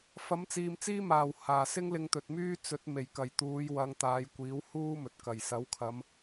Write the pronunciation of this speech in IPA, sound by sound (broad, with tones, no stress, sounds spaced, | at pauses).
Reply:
f ɐ˨˥ m t͡s iː˨ m t͡s iː˥ m aː˨˩ w h aː˨˩ s ɪ˥ ŋ l ɪ˧ ŋ t̪ ɵ˨ t̚ m yː˥ t͡s ɵ˨˥ t̚ m e˨˩ j k ɐ˨˩ j t̪ uː˨˧ j w ɐ˨˧ ŋ t̪ aː˨˧ j kʷ iː˨˥ w h uː˥ m ɵ˨ t̚ k ɐ˨˩ j s ɐ˨˥ w kʰ ɐ˨˧ m